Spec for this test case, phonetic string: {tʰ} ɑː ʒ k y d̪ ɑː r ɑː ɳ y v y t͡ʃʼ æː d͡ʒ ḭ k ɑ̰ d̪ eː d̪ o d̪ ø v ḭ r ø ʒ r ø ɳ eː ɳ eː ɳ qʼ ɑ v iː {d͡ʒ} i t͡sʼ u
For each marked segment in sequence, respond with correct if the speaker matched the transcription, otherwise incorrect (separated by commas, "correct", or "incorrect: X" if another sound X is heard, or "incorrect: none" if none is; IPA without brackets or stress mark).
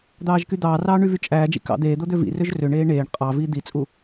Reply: incorrect: d̪, incorrect: d̪